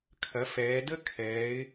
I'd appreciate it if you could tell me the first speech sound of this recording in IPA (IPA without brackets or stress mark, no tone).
kʰ